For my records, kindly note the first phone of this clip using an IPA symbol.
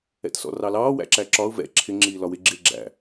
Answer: ɛ̰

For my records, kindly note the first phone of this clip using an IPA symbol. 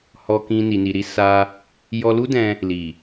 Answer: h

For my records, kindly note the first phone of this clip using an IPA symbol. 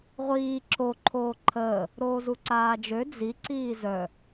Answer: ʁʷ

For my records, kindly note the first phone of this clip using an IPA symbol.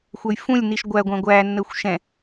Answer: xʷ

